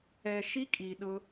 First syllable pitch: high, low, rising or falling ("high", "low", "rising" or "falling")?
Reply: low